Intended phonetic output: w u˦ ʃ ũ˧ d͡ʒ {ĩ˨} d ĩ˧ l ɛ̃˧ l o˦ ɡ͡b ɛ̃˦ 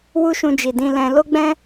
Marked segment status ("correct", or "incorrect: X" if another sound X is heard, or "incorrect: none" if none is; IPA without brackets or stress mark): incorrect: i˨